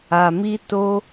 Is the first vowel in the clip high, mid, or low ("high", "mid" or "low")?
low